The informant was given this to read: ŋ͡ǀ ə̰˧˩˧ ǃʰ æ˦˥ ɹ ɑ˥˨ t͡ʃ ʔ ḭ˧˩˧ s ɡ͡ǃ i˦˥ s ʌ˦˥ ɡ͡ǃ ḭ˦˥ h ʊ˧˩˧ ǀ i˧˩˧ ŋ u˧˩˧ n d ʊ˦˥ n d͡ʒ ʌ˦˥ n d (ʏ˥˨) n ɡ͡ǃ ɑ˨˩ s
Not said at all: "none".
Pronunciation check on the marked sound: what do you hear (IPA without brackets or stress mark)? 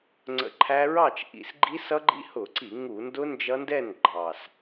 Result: ɛ˥˨